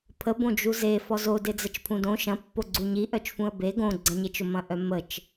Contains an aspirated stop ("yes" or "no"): yes